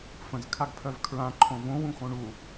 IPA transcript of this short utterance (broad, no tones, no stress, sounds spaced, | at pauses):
f ə̃ z kʰ a ɡ pʰ œ v kʰ ɹ ã ǃʰ õ v õ w ũ x õ ɳ u